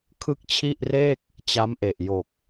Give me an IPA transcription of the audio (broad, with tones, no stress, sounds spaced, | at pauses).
kʰ ɯ˥˩ k̚ t͡ɕʰ i˥˩ ʔ r eː˥˩ k̚ | t͡ɕ a˦˥ m ʔ e˨˩ ʔ j o˨˩ k̚